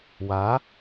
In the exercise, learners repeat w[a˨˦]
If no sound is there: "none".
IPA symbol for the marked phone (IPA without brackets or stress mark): a˨˦